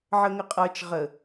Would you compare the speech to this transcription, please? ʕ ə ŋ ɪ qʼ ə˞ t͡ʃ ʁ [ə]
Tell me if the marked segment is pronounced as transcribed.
yes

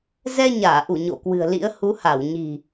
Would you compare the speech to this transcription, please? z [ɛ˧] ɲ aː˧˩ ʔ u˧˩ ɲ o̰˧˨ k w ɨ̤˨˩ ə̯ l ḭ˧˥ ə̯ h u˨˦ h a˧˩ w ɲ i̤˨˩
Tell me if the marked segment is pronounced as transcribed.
yes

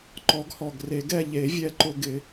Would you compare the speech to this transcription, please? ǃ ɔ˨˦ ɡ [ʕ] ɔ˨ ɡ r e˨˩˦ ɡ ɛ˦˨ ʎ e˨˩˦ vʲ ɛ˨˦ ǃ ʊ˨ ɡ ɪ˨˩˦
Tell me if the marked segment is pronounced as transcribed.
no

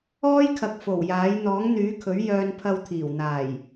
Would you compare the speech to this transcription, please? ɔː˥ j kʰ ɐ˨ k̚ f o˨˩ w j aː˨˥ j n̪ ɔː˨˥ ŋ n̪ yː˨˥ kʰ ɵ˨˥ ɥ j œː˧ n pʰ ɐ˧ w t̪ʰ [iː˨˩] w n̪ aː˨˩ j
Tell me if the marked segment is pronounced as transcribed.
yes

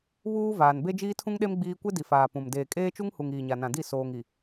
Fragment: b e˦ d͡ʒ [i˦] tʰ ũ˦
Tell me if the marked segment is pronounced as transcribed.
no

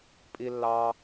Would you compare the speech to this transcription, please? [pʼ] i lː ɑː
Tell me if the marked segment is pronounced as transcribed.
yes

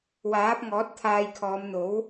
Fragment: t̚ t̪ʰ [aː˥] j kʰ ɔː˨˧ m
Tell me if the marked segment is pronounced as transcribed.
no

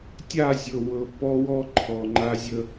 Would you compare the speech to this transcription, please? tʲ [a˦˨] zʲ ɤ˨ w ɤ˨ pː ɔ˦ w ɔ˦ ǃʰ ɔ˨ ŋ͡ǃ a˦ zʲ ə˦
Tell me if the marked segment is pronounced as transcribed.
yes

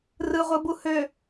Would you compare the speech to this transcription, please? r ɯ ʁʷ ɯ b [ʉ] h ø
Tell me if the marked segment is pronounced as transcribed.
no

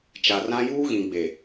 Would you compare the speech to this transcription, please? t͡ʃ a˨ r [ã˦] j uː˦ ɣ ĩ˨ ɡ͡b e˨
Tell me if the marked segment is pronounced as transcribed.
yes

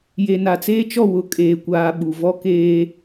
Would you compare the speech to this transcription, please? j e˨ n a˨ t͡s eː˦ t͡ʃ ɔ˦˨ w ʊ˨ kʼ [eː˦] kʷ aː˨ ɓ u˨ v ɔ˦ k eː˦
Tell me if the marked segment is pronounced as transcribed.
no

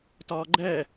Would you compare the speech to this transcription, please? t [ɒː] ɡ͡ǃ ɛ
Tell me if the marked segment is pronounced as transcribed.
yes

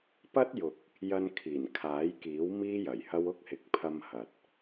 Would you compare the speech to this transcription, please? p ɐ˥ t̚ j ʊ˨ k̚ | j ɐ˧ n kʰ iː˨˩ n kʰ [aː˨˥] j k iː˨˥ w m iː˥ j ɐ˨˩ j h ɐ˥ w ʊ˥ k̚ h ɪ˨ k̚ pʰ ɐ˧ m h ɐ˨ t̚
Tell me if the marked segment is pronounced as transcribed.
yes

